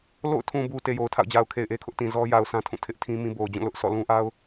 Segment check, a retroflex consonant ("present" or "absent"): absent